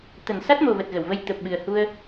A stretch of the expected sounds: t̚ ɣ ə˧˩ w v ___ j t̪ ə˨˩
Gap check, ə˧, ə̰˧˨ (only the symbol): ə˧